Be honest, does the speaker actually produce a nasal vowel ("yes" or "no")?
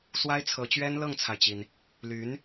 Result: no